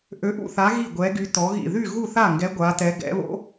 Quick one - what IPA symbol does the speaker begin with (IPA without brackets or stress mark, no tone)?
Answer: ʔ